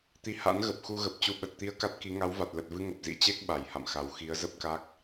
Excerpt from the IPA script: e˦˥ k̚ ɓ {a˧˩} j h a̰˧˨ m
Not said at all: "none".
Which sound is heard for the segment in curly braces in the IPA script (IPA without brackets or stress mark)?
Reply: a˧˩